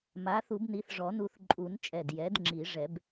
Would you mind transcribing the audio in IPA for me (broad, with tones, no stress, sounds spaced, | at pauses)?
m a˩˥ θ u˨˩˦ b n i˩˥ θ ʐ ɔ˨˩˦ n u˧˩ θ ǃʼ u˨˩˦ n t͡ʃʼ ɛ˧˩ d j ɛ˩˥ d ŋ͡ǁ i˨˩˦ ʐ ɛ˨˩˦ b